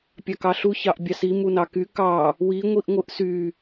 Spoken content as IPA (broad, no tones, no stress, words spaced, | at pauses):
pʲɑkɑɬu çɑʔbʲɑsi munɑky kɑ | wi ŋʷiʔŋʷɯʔsy